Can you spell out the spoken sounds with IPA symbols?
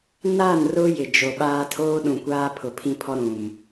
n a˦˨ n r ʊ˦ j ɪ˨ d͡ʒ o˨ ɓ aː˦ tʰ oː˦ ɗ ũ˨ kʷ aː˦ pʰ ʊ˨ pʰ ĩ˦ pʰ ɔ˦ ɾ ũ˨ m

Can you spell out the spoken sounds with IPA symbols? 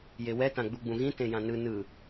j e w ɛ t ã ɡ͡b u ɡ͡b ũ ɣ ĩ t ẽ j ã n ɯ n ɯ

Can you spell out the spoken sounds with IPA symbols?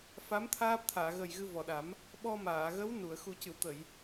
f a˧˥ m t̪ʰ aː˦˥ p̚ t̪ʰ aː˨˩˨ ɣ ə˨˩ j ɣ ɨ˧ v ɔ˨˩ ɗ a˨˩˦ m | ɓ ɔ˧ m aː˨˩˨ ɣ ə˧˥ w n u˨˩˨ ə̯ x u˨˩˦ c ɨ˨˩˨ w t̪ ə˨˩˨ j

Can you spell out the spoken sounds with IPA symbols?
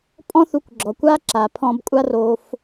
pʼ ɔ̃˥ θ u˧ kʷ ɡ͡ǁ ɔ˩ kʷ a˥ ǁ a˩ pʰ ɔ̃˧ b kʷʼ a˥ r o˧ f

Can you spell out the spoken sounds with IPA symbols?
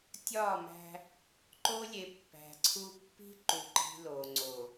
tʲ ɒ˦˨ m æ̤˦ | ǃ o˦ lʲ e˨ pː æ̤˨ ǀʰ u˦ pː i̤˦ ǃ u˨ ǃ i̤˦ l o˨ ŋ͡ǀ o˨

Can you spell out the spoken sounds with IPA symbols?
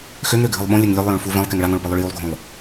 x ø ŋ ɾ ø ɡʱ ɨ lˠ ɓ õ lʲ ɛ ŋ lʲ ø lˠ j õ ɭ f u v ɛ̃ lˠ k ɛ ŋ ɭ a ŋ õ ɭ p ɯ lˠ ø ɭ j u lˠ ɡʱ õ lˠ

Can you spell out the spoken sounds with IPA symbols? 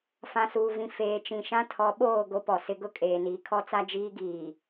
f ã˨ s uː˨ v ĩ˨ f eː˨ t͡ʃ ĩ˨ ʃ ã˦ tʰ ɔ˨˦ ɓ oː˦˨ ɡ o˦ p ɔ˨ s ɪ˦ ɡ ʊ˦ kʼ eː˨ n iː˨ kʰ ɔ˦ t͡s a˦ d͡ʒ iː˦ ɡ iː˨

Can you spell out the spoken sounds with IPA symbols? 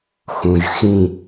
x ũ ʒ x ĩ

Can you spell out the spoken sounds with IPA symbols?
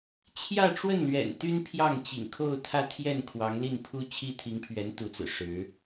t͡ɕʰ j ä˥˧ ʈ͡ʂ w ə˥˩ n l ɥ ɛ̰˨˩ n t̪ y˥ n pʰ j ɑ˥˩ ŋ t͡ɕ ḭ˨˩ ŋ kʰ o˥˧ ʊ̯ t̪ʰ ä˥˧ t̪ʰ j ɛ˥˩ n kʰ w ɑ˧˥ ŋ l i˥˩ n pʰ u˥ t͡ɕʰ i˥ t̪ʰ i˧˥ ŋ pʰ ɥ ɛ˧˥ n t̪ u˧˥ t͡s ɹ̩˨˩ ʂ ɻ̩˧˥

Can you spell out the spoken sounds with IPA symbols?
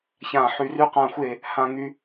ç ã˧˩ ħ y˧˩ r y˧ q ã˧˩ xʷ e˧˩ | h ã˧˩ ŋ y˧

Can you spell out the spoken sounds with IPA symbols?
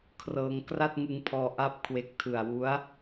kʰ r ɤː˧ ŋ k r a˥˩ t̚ ŋ ɯ˧ ŋ pʰ ɔː˧ ʔ a˥˩ p̚ kʰ w e˦˥ k̚ tʰ ɯ˨˩ a̯ w u˦˥ a̯

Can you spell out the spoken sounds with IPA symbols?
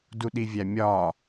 d u ɗ i vʲ æ mʲ ɒ

